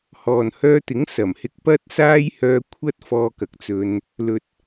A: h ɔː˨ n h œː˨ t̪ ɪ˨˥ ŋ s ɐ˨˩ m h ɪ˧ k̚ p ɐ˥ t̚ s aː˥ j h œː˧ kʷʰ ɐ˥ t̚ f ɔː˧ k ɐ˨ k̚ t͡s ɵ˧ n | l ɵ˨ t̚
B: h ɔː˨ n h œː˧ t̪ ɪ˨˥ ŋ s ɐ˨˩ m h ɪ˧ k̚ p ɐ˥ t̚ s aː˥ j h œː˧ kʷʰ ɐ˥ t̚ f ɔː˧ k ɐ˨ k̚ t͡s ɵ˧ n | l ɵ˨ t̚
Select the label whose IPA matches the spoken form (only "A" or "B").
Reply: B